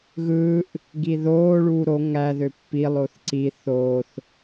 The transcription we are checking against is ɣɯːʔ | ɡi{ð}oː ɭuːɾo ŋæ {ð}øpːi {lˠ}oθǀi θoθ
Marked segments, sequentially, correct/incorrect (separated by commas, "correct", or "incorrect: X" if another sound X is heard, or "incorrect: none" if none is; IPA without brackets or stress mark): correct, correct, correct